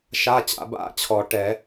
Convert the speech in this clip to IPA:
ʃ a˧˥˧ t͡ɕ a̰˨˩˦ b a̰˧˥˧ t͡ɕʰ ɔ˨˩˦ ʈ ɛ˨˩˦

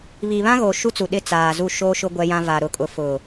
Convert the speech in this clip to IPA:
β i˨ β ã˦ ɣ o˨ ʃ u˦ t͡s u˨ ɗ ɪ˦˨ t͡s aː˨ z u˦˨ ʃ oː˦ ʃ ʊ˦ ɡʷ ɛ˦ j ã˦ v a˨ ɾ ʊ˨ kʼ ʊ˨ f ʊ˨

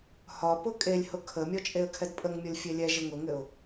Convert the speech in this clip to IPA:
h ɒ p ʊ kʼ e lʲ h ʊ kʰ ə mʲ ɔ t͡ʃʼ e ə̯ kʰ ɛ d pʼ ə ŋ mʲ ɔ lʲ fʲ e lʲ ɛ ʒ ɘ ŋ ʊ ŋ ɘ ʊ̯

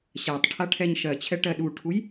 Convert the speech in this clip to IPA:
ɕ a tˤ ʈʰ a ʈʰ ɛ ɲ ʃ ɜ t͡ɕʰ ɛ ʈ ɜ ɗ u ʈʰ u j

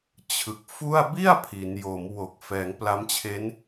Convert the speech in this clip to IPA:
t͡ɕʰ ɯ˨˩ k̚ f u˥˩ a̯ b i˥˩ a̯ pʰ i˩˦ n j o˩˦ m w o˨˩ k̚ f ɛː˩˦ ŋ p l a˦˥ m t͡ɕʰ e˦˥ n

